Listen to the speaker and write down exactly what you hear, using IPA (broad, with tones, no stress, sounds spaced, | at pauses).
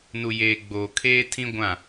n u˨ j eː˨ ɡ͡b oː˨ kʰ eː˦ tʰ ĩ˦ ɡʷ ã˦˨